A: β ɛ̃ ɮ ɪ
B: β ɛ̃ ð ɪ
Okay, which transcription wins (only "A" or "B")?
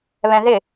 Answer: B